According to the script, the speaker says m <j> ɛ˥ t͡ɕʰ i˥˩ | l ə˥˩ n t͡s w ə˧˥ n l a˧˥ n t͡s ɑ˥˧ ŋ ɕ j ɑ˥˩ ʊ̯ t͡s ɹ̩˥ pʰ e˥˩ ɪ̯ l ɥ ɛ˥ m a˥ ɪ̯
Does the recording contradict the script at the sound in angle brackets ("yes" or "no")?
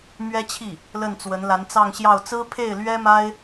yes